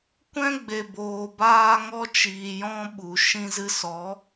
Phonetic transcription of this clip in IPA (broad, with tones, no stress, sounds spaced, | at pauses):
kʷ ɛ̃˦ ɡ͡b e˨ b oː˨ b aː˧ ŋ ɔ˧ t͡ʃ iː˨ j ɔ̃˧ ɓ u˨ ʃ ĩ˧ z ɨ˧ s ɔ˨˦